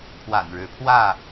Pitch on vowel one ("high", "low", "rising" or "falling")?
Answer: low